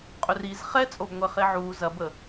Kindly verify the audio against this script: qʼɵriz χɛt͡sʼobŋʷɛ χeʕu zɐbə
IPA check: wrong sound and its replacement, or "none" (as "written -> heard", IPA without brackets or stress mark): none